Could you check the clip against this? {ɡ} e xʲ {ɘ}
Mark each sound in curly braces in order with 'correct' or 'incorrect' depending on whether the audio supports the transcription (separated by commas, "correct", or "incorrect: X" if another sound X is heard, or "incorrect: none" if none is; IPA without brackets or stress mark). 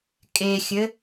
incorrect: kʼ, correct